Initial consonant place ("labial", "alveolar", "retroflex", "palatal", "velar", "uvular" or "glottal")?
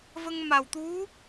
labial